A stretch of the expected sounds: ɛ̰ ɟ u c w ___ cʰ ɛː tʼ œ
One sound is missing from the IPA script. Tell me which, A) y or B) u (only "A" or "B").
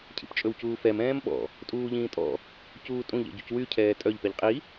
A